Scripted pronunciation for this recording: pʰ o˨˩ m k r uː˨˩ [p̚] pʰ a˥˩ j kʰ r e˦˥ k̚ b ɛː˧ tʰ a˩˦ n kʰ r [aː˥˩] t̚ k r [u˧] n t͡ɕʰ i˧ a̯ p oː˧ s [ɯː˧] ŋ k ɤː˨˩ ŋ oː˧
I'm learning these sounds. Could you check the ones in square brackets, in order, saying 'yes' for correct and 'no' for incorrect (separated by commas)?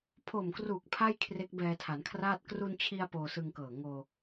no, yes, yes, no